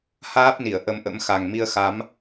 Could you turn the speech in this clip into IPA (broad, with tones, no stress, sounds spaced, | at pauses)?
h aː˦˥ p̚ n i˧˩ ə̯ ʔ ə˨˦ m ʔ ə̰˧˥ m x a˨˩ ŋ m i˧ ə̯ x a˨˦ m